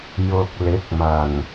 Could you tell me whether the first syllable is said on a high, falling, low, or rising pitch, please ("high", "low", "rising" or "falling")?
low